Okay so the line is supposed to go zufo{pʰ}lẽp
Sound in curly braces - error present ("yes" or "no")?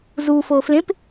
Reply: yes